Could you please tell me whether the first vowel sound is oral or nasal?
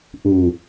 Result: oral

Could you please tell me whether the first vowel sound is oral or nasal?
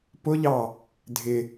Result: oral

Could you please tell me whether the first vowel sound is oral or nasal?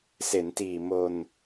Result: oral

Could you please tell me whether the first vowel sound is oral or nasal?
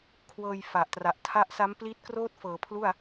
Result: oral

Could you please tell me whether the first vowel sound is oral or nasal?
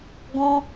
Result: nasal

